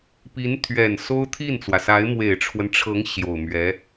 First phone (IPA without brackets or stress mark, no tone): p